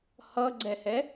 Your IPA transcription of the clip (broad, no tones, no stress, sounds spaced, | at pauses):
h ʌ ɡ͡ǀ ɛ h ɛ